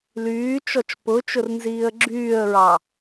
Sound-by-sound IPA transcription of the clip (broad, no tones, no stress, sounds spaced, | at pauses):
l yː t͡ʃ ɔ t͡ʃ p ʊ t͡ʃ ʊ r n z iː ə̯ ɡ͡ǁ yː ə̯ ɹ ɑ